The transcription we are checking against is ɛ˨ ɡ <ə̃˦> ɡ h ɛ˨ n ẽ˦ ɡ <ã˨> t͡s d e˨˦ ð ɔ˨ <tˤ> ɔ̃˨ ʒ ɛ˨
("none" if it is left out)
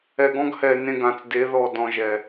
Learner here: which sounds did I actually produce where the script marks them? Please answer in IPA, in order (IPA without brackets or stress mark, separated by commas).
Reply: ɔ̃˦, ã˨, d